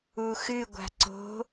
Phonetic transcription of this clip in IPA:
u x ɨ ɡʷ a̤ ǀ o̤

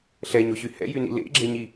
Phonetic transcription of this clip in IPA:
ɬ ɛ ɲ o ɕ y h ɛ̰ j y n ḭ l ḛ ɡ͡ǁ e ɲ i

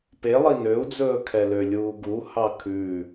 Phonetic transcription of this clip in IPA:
p e lˠ i n ø u̯ d͡z ɵː kʰ ɛ l ø lʲ uː ɡ u h ɑ kʰ ʉ

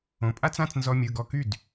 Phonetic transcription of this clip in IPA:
õ˨ pʼ a˥ t͡s ã˧˥˧ t͡s n z ɔ˥ mʲ ɯ˧˥˧ ɡ ɔ˥˩ k y˥˩ d

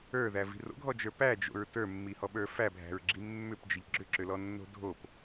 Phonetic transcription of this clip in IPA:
ə˞ ð æ v i̤ r o̰ ɡʱ ɔ d͡ʒ ə˞ p æ d͡ʒ o̰ ɹ t ə˞ mː i h ɔ ɓ ə˞ f æ bʱ æ̤ ɹ ɡ͡ǁ i mː ʏ p d͡ʒ ɪ ʎ ɡ͡ǁ ʏ ǁ ʏ l ɔ nː o̤ dʱ o p

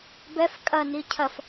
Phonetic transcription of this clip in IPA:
b ɛ f kʼ ɐ n i cʰ ɐ f

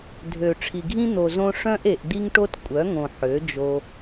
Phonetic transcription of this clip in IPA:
dʱ ø˨ ʈ͡ʂʰ i˨ ɡʱ ĩ˦ n̪ o˨ z õ˧ ʂ œ̃˦ ʔ e˨ ʔ d̪ i˧ ŋ ʈ o˧ t kʷʼ œ˨˦ ŋ õ˨ ħ ø˨˦ d͡ʒ o˧

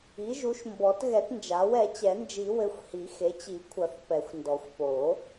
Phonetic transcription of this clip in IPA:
i˩˥ ʒ u˩˥ ʃ m b ɔ˨˩˦ t ɣ ɛ˨˩˦ t n d͡ʒ a˩˥ w ɛ˨˩˦ t͡ɕ ɛ˨˩˦ n d͡ʒ i˨˩˦ w ɘ˩˥ xʷ h i˨˩˦ x e˩˥ t͡ɕ i˨˩˦ kʷʰ ɐ˨˩˦ θ p ɛ˨˩˦ xʷ n d ɔ˨˩˦ xʷ p o˨˩˦

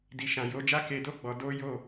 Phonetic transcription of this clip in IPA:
d i˨ ʃ ã˨ j o˨˦ d͡ʒ a˦ k e˧ d o˦ ɡ͡b ɔ˧ d o˦ j o˦˨

